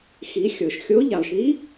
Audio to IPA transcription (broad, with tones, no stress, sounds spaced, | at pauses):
x i˩˧ xʲ ɤ˩ ʃ xʲ o˧˥ ʎ a˩ lˠ ʃ i˧˥